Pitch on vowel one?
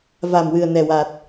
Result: low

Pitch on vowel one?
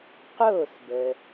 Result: falling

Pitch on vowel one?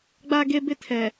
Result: high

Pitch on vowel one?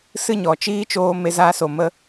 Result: high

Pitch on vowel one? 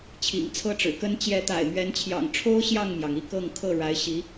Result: low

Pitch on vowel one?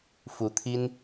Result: rising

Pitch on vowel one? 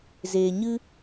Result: low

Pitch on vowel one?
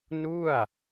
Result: falling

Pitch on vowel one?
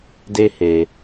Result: high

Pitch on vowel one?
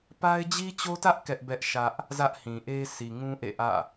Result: high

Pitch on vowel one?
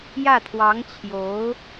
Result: falling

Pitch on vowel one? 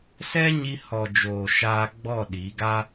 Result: high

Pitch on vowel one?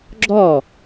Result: falling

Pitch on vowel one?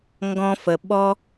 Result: high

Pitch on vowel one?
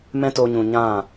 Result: high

